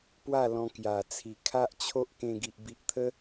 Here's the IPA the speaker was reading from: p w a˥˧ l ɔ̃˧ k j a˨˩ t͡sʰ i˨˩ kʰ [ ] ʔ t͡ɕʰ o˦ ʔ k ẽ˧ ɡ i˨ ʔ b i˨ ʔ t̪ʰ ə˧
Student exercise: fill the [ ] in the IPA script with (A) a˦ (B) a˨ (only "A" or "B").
A